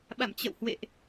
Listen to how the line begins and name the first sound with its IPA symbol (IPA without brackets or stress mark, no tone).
ɓ